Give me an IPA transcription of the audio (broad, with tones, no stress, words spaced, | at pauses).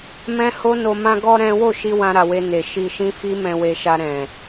mɛ̃˦ho˦no˧ mã˧ɡɔ˧ ɾɛ̃˦ wo˦˨ʃi˧ wã˧ɾa˨we˧ ne˨ ʃi˧ʃĩ˦fi˦ mɛ̃˧we˧ʃa˧ ɾɛ̃˨